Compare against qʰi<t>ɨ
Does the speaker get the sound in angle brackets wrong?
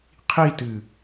no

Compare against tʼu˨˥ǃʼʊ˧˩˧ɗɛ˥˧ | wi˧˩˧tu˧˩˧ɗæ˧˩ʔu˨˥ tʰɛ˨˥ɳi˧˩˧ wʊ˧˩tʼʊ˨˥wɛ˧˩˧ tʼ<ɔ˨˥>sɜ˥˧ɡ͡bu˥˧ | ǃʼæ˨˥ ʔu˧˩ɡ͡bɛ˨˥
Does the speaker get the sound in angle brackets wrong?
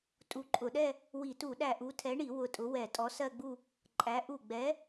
no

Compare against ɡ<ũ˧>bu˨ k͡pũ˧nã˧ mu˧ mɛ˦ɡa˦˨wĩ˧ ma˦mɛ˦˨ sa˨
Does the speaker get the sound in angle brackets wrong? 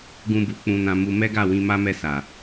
no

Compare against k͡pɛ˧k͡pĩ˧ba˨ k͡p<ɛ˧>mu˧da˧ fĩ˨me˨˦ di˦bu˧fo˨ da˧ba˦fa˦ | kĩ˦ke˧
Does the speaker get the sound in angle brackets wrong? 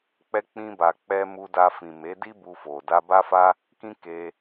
no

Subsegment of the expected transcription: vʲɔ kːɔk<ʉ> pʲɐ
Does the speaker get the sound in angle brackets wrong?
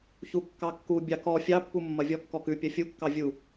no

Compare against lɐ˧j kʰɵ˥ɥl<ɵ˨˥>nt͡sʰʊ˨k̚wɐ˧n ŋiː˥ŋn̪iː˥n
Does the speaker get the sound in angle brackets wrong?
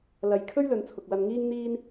yes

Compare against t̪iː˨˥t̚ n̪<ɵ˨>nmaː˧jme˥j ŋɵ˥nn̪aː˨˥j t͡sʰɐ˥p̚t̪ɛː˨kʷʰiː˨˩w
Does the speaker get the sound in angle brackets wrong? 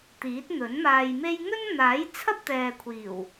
yes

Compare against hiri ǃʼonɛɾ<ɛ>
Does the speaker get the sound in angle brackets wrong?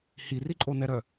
yes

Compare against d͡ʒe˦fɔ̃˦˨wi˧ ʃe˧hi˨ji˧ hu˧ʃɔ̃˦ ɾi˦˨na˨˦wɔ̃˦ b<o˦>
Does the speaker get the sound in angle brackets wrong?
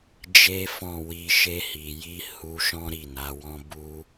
yes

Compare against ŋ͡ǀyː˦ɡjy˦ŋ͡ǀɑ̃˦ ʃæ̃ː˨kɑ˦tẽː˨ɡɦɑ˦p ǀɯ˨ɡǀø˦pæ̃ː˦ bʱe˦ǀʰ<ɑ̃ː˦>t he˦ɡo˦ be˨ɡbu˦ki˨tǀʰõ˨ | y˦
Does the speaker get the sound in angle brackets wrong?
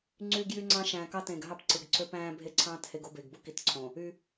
no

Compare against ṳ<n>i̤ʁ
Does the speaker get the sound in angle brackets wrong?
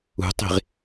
yes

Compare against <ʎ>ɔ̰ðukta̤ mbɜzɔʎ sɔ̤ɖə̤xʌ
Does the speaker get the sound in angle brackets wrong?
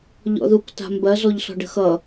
no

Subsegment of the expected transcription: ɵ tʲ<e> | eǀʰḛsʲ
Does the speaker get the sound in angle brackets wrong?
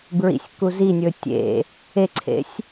yes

